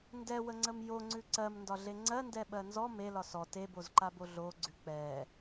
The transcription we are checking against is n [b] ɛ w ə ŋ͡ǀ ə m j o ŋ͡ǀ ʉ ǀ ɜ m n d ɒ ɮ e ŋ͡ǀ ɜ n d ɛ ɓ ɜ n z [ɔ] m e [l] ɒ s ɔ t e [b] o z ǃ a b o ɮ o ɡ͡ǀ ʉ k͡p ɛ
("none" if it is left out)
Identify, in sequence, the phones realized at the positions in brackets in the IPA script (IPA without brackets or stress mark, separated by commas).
d, ɔ, l, b